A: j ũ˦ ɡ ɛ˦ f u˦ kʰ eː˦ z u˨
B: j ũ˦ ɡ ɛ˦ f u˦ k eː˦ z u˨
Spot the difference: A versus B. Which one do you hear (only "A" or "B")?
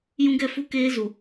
B